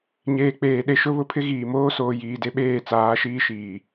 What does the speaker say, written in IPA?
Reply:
ɲ eː˨ k͡p eː˨ ɗ e˨ ʃ ʊ˦ β ʊ˦ pʰ ɪ˦ ɣ iː˨ m oː˦ s oː˨ j iː˨ d e˦ ɓ eː˦˨ t͡s aː˨˦ ʃ iː˦ ʃ iː˨

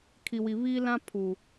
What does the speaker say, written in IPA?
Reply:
kʰ i˨ w i˨ β iː˦ l ã˦ pʰ u˨

